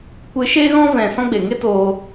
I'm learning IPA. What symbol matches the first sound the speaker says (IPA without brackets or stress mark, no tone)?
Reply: kʷ